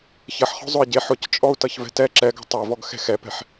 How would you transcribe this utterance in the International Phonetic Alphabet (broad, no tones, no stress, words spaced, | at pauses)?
çɐħχɔ̤ zˤʊi̯ɟeħ ʊct͡ʃʼɔu̯ tʌçvɛ̤tɛ ǁɛɡɔ̤ tˤe vɔɡxɛ̤xɛpɛ̤ħ